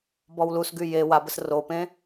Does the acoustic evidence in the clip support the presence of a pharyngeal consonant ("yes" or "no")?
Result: no